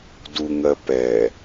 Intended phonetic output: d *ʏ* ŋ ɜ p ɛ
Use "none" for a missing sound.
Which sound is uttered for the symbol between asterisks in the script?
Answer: u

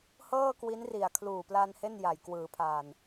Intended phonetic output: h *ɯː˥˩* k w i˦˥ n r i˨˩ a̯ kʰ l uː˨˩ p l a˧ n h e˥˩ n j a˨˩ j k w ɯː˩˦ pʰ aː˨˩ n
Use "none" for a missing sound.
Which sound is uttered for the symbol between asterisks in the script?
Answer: ɤː˥˩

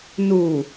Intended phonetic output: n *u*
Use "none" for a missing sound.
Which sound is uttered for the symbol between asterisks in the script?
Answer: u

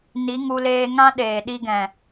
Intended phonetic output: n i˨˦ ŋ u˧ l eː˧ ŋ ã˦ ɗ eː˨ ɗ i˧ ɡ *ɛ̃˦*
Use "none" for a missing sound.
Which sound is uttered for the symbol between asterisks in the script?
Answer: ɛ̃˨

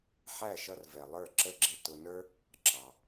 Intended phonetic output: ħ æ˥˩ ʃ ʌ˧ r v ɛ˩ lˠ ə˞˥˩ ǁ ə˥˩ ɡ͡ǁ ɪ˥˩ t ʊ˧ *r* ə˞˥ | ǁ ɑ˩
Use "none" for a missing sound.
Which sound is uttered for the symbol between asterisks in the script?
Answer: n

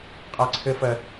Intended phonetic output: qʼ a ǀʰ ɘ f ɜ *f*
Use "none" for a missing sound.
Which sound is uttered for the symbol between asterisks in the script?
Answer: none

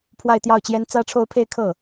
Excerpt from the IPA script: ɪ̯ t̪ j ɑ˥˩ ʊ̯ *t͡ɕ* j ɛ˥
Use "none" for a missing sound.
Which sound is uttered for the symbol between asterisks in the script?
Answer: t͡ɕ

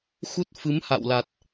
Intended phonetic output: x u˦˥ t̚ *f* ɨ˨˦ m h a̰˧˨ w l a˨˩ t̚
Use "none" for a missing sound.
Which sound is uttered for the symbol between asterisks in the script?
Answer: f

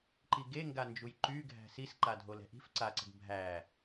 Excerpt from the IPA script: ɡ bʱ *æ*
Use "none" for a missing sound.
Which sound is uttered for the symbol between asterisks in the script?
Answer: æ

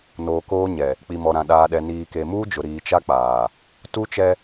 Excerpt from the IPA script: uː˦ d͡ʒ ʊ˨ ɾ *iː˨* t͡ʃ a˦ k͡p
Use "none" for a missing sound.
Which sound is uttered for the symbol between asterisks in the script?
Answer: iː˨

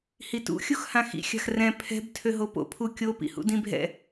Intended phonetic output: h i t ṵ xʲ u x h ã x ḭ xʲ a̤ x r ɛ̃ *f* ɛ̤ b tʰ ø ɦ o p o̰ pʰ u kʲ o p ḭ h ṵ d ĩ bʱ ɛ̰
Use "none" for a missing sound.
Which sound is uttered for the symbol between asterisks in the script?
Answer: pʰ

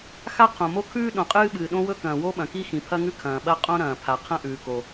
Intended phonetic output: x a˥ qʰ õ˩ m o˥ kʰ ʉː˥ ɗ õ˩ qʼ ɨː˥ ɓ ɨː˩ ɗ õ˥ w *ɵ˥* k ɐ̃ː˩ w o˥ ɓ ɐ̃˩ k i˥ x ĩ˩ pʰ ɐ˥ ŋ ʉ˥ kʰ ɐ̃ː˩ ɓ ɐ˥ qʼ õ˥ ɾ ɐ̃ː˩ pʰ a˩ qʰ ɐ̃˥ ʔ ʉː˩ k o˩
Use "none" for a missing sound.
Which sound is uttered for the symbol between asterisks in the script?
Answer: ɵ˥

